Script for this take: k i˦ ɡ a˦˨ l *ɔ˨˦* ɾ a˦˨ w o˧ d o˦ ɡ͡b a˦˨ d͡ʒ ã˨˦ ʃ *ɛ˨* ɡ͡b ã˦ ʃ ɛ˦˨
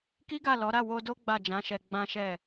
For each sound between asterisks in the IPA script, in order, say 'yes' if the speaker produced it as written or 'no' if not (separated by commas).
yes, no